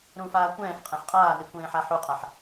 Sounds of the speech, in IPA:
ɾũfaː kʷɛ̃ːfqʼɛ̃ħ qʼaːnikʷẽːħa ħuqʼaħ

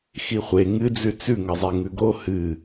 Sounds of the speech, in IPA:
xiχʷe ŋɨd͡zʉ t͡sʉŋɐzˤe ŋʉɡo hɨ

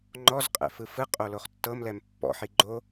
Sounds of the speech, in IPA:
ŋ͡ǃɔzqʼɛ̰ fɯfɯqʼo loχtːɤmlɛm pːɔ̰ħi ɡ͡ǃo

